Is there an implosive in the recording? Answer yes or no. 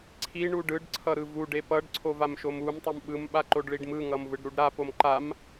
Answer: yes